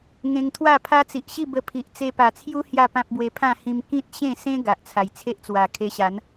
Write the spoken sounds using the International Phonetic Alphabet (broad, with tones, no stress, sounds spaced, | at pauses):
ŋ ẽ˧ ŋ t̪ʰ w a˥˧ pʰ a˦ t͡s i˨ ʔ ɕ i˥˧ b ə˧ pʰ i˨ ʔ t͡s e˧ p a˨˩ t͡sʰ j u˦ h j a˥˧ p ã˦ p̚ b w e˧ pʰ ã˥˧ h ĩ˧ m k ĩ˦ t̚ ɕ ẽ˥˧ s ẽ˦ ɡ a˨ ʔ t͡sʰ a˨˩ j t͡sʰ e˦ ʔ t͡s w a˨˩ kʰ e˧ ɕ a˨˦ n